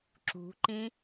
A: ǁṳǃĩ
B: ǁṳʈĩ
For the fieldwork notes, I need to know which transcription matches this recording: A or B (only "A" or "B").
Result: A